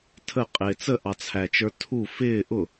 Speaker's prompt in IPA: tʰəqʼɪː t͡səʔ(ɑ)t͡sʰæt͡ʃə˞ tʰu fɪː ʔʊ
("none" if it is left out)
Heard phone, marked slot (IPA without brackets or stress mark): ɑ